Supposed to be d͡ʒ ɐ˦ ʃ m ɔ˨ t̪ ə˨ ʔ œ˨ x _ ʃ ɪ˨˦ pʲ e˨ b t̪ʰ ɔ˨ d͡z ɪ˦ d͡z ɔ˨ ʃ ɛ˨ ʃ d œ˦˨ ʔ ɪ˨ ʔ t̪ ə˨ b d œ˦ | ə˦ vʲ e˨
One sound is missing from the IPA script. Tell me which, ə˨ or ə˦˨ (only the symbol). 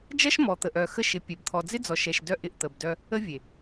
ə˦˨